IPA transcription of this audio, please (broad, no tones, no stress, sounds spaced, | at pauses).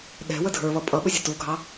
ɗ ɛ̤ w ə dʱ ə˞ β ʌ pʼ ʌ ɓ ʊ zʲ ə t u ɡʱ ɑ